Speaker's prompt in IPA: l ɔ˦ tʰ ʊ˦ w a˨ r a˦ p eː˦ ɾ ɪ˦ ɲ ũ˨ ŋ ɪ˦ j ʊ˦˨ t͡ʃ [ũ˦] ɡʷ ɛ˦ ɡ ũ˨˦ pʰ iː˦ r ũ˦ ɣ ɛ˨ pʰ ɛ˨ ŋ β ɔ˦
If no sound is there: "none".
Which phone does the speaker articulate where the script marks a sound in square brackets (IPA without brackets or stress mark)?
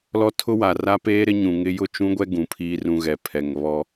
ũ˦